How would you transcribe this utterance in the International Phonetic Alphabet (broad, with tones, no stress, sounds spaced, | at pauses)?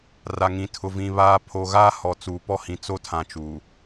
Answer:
r a˨ ŋ ĩ˨ tʰ ʊ˨ v ĩ˨ β aː˨ pʰ o˨ ɣ aː˦ h ɔ˨ t͡s uː˨ p ɔ˦ h ĩ˨ t͡s o˦ tʰ ã˨ t͡ʃ uː˨